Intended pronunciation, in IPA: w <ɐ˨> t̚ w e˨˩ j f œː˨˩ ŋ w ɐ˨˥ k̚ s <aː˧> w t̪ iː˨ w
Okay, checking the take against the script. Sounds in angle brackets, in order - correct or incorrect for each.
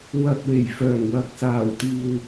correct, incorrect

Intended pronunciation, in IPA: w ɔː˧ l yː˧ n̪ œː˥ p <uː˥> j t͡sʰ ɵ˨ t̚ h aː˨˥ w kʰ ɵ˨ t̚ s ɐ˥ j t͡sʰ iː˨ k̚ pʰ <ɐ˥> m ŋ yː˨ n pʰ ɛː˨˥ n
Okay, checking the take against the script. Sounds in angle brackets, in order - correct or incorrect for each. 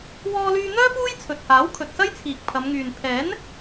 correct, incorrect

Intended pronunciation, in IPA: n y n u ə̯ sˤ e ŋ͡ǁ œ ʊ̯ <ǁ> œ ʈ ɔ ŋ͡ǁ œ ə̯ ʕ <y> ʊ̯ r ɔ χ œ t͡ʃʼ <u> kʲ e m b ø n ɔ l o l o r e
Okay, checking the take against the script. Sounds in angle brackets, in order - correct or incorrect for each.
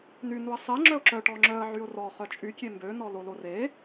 correct, correct, incorrect

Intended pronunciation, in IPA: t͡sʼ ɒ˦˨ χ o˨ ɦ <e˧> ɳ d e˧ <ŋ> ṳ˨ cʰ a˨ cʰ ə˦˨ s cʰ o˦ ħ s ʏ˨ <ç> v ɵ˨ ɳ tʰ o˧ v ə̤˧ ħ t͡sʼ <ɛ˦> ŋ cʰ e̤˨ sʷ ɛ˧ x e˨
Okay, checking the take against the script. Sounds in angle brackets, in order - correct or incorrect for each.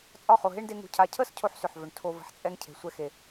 incorrect, correct, incorrect, correct

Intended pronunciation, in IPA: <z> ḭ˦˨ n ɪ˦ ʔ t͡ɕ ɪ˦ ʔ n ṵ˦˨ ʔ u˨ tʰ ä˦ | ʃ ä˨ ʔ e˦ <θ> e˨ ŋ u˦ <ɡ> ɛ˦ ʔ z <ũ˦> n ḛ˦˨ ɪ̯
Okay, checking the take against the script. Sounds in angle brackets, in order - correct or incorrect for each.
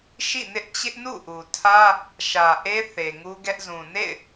incorrect, correct, correct, incorrect

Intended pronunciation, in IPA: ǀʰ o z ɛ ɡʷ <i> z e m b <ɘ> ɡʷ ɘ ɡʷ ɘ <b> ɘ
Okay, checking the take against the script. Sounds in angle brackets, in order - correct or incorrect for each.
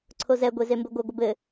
incorrect, correct, correct

